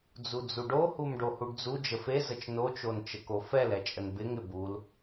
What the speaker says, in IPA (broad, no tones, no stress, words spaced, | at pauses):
d͡zud͡zuɖo humɖohuɖd͡zu d͡ʒəfe zət͡ʃno t͡ʃont͡ʃəkofɛl ɛt͡ʃʼənbɪŋ ɪbul